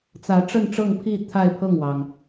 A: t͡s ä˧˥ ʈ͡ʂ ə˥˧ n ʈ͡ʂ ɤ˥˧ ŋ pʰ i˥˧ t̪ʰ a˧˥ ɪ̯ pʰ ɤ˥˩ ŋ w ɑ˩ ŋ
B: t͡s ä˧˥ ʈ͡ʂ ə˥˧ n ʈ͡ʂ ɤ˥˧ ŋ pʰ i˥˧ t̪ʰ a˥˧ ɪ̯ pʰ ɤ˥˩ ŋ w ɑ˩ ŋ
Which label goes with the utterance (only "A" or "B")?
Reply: B